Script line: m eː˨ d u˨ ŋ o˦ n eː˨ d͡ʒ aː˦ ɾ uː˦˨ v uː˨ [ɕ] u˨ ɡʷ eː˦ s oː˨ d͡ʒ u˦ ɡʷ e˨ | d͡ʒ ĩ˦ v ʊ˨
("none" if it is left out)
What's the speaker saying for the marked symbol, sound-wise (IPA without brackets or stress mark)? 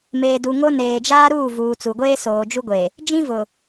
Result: t͡s